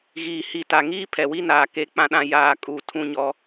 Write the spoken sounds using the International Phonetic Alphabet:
ɣiː˨hi˨ta˨ŋiː˦ pʰɛ˨wi˦naː˨ ke˦k͡pã˦ɗã˦ jaː˨ kʼu˨ tʰũ˦ɲɔ˦

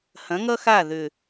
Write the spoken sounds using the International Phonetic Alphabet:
hɐ̃˨˦ŋʌ˦xa˦˨ ðʏ˨

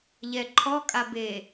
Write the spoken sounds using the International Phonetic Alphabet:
ʎɛǃʰɔ kʼabe

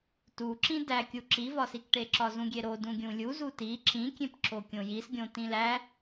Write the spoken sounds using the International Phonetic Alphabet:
tu ǁĩdækʲu ǁivɒsikʈe ǁɒzũɡʲeɾo dũɡʲũlʲuzu ti ǁĩkʲẽp ǁokʲõjisɡʲõ tĩlæ

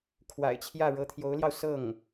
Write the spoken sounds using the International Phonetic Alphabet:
kʰwa̰˨˩ɪ̯t͡ɕʰjä˥˩ ɻɤ˧˥t̪ʰjo˧˥ʊ̯ljɑ˧ʊ̯ sɤ˥˩ŋ

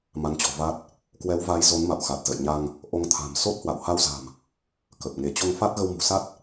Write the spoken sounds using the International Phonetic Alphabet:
ma˨˦nt͡ɕɔ̤˨˩va˦˥t̚ | kwɛ˨˦wva˨˦j zo˨˦nma̰˧˨wxa˨˩t̚ zə̰˧˨jɲa˧ŋ | ʔo˨˦ŋt̪ʰa̤˨˩mso˦˥t̚hwa̰˧˨w ha˧wza̤˨˩m | kə˨˩p̚ ŋe˧˩t͡ɕo˧ŋ fa˦˥t̚ɣə˧wmṳ˨˩sa˦˥t̚

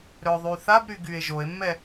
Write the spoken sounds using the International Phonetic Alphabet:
ɾœðˤyθabɾy ɡye̯ʒoe̯mːɛ

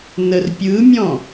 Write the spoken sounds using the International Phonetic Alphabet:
nərpʲɯmʲɔ̃

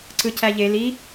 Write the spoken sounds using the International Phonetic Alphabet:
ǀɯcæʎe li

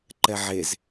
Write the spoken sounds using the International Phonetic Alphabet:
ǃɛʕez

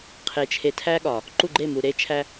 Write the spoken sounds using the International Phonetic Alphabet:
qʰe˨t͡ʃʰe˨tʰæ˦ɠɒ˨ | ǃu˦˨ɡ͡ǃe˦˨mu˨ ɾe˦t͡ʃʰæ˦

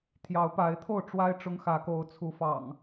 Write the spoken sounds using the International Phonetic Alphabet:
t̪ʰjɑ˨˦ʊ̯pa˨˦ɪ̯t̪ʰo˥˨ʊ̯ ʈ͡ʂwa˦ɪ̯ ʈ͡ʂʊ˦ŋxä˨˦ko˨˦ʊ̯ t͡sʰu˨˦fɑ̰˨˩ŋ

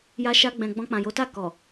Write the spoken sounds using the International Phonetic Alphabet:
ja˧ʃa˧ɡ͡bɛ̃˨ ɡ͡bɔ̃˧k͡pã˨jo˨˦ta˦˨ kɔ˨

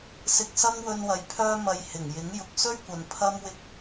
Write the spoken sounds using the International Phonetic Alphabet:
sɪ˧k̚sɐ˥ŋwɵ˧nwɐ˨j pʰœː˥mɐ˧jhɪ˨˩ŋjɪ˨˥ŋ jʊ˨k̚sɵ˥ɥkʷɐ˨n pʰɐ˥mwɪ˥k̚

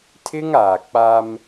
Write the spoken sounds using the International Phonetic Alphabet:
tʰɪ˦ŋaː˨k͡pa˦m

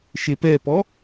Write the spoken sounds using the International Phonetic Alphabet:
ʃepɛpɔ

